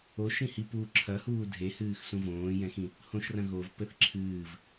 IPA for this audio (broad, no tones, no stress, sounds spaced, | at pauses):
o ʃ ĩ h i p uː ǁʰ ɐ h uː dʱ e h ɨː x s ũ v õː j ɛ̃ x ĩ | h õ ʃ r ɐ̃ ɣ o v p ɘ θ ǁʰ ɨː v